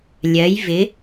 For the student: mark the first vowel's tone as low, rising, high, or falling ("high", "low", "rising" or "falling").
rising